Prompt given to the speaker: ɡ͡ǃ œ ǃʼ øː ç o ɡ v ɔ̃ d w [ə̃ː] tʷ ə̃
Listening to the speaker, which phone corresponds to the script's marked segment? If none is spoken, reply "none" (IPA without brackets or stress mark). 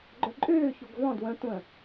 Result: ə̃